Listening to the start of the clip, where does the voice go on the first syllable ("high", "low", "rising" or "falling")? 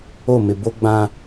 falling